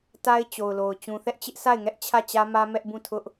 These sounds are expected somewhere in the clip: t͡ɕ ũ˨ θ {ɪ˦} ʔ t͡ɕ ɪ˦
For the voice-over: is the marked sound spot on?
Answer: no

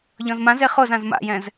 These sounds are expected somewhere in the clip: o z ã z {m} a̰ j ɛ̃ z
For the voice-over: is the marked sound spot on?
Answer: yes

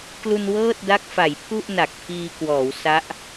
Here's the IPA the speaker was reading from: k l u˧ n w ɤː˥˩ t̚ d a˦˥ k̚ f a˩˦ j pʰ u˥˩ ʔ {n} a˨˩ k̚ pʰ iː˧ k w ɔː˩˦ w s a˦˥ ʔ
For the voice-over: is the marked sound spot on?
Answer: yes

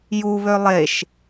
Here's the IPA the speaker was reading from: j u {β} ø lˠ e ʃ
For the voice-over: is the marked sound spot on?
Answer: yes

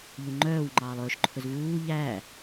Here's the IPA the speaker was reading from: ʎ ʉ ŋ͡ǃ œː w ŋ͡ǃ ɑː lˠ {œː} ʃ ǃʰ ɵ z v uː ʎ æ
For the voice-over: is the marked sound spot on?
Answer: no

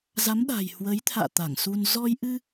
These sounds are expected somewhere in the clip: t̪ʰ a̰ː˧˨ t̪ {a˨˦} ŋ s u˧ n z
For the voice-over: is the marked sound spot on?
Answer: no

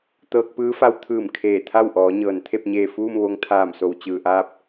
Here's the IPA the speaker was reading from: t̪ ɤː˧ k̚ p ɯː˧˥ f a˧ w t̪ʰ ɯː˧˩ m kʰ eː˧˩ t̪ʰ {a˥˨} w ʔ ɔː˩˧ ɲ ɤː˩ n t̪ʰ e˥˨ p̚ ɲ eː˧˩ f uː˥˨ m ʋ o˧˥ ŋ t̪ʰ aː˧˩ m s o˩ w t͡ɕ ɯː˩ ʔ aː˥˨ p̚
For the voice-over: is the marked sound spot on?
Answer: yes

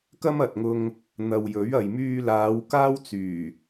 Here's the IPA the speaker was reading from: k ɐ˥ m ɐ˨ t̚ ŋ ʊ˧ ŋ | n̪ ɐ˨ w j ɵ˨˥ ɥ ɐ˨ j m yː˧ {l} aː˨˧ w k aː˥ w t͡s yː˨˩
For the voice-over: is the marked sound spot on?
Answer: yes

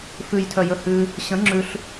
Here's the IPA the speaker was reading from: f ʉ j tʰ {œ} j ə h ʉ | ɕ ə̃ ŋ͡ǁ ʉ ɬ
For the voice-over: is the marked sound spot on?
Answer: yes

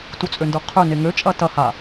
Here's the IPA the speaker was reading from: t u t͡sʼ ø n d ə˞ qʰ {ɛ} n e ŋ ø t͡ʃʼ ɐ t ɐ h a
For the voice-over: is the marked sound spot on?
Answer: no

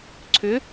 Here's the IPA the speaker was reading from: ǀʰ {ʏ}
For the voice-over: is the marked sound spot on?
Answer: yes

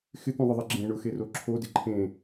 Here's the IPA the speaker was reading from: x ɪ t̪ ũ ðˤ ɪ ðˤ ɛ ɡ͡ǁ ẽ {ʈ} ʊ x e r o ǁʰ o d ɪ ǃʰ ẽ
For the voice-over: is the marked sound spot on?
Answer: no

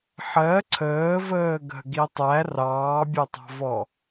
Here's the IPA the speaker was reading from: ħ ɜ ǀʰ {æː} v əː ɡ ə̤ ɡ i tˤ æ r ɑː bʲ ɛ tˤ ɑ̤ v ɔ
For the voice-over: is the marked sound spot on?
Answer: no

